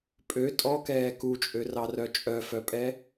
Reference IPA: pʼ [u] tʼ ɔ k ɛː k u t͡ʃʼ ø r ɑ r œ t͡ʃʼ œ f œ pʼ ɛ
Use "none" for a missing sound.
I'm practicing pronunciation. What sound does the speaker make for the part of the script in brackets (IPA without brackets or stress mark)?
ø